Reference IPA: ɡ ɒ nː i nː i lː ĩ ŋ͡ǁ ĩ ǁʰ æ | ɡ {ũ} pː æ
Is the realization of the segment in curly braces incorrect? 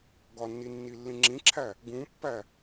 no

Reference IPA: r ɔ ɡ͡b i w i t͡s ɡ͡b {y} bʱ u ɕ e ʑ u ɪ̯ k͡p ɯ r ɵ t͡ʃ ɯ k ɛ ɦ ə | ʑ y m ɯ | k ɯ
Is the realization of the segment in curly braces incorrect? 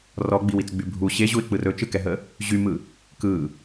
no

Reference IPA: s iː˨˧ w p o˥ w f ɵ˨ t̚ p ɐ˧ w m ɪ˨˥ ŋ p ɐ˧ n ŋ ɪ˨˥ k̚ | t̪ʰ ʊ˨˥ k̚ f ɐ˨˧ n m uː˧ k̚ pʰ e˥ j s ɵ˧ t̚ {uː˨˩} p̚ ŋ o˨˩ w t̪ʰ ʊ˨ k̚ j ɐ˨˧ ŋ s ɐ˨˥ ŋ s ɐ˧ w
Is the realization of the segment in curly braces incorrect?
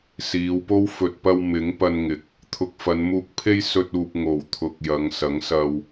yes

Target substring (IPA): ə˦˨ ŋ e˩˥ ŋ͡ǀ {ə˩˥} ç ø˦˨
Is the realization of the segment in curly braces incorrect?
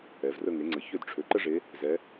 no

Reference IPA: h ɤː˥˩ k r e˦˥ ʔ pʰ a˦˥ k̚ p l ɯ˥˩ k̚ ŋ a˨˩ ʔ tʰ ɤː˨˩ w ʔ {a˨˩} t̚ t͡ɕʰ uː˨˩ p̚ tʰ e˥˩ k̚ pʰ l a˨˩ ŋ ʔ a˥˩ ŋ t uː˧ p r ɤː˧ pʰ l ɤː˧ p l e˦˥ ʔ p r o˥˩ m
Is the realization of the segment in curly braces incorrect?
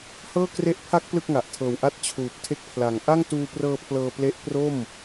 yes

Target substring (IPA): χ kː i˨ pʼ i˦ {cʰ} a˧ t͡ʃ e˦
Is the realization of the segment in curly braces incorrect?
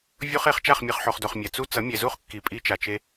yes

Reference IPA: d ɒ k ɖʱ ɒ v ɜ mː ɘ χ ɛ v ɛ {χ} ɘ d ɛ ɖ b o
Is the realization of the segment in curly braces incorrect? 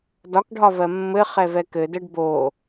yes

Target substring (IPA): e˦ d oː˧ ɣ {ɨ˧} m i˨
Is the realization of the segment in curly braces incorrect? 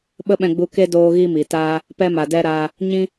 yes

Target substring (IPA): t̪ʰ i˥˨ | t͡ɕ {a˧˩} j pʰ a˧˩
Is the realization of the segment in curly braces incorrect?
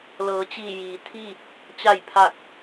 no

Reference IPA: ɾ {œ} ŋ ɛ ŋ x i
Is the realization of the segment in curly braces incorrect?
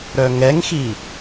no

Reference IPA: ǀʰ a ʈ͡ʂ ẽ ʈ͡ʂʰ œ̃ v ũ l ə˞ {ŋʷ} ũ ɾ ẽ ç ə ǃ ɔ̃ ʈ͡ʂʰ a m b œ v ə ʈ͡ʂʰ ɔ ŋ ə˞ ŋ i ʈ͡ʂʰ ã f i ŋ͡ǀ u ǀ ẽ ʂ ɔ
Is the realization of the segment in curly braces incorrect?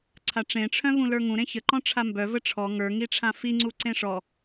yes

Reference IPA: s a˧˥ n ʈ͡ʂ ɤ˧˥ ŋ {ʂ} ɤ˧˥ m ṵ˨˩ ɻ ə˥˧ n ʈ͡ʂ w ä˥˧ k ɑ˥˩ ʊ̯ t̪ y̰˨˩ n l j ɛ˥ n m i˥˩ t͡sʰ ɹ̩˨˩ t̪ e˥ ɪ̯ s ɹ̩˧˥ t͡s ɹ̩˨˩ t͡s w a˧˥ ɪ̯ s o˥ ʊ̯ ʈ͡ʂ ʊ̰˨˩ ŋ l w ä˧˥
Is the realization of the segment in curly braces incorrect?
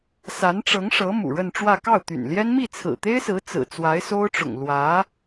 no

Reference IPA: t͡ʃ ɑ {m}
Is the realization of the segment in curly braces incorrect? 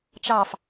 yes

